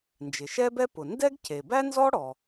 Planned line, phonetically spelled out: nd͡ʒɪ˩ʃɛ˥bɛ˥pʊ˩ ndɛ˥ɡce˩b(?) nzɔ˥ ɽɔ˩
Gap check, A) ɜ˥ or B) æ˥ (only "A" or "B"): B